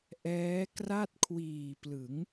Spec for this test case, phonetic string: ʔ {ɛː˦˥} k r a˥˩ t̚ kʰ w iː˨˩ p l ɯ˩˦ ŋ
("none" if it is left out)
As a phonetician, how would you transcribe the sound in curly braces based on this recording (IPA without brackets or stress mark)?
ɛː˦˥